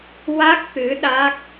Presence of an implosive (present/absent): present